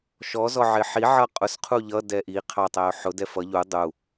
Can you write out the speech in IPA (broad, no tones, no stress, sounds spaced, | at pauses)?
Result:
ʃ ɔ z ɔ ʕ ɪ ħ i ʕ ʌ qʼ ʊ s qʰ u ʎ ʌ d ɛ ʔ i qʰ ɑ tˤ æ ʊ̯ ħ ʊ d ɛ f ʌ ʎ u dˤ u